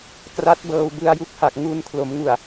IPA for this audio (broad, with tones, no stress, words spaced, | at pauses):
kra˦˥t̚bɤː˧w bɯ˧a̯ju˥˩k̚ha˨˩k̚ ŋu˧nkʰlo˩˦mŋu˨˩a̯